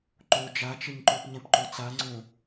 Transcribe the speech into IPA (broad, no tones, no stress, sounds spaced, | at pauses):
ǃ o d͡ʒ a t͡ʃ ɪ ɲ ǃ o p ɲ ɛ̃ p ǃ o t͡s a ŋ͡ǀ õ